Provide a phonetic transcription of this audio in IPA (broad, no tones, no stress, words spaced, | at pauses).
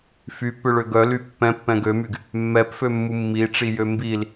fypːʏɭø ɡœly pːɛ̃pːɛ̃ ɡømyɡ | mːɛpfømːu mːiʈ͡ʂijø mbil